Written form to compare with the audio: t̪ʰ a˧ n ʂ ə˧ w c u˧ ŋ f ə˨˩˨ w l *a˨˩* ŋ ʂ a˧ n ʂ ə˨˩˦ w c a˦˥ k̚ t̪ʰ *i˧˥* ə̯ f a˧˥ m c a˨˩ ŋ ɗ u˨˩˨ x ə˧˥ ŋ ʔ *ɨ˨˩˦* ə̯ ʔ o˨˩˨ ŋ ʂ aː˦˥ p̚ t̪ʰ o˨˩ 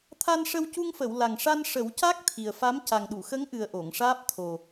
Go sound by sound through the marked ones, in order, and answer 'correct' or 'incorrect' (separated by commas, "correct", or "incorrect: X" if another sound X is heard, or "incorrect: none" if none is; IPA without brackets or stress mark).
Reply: correct, incorrect: i˨˩, incorrect: ɨ˨˩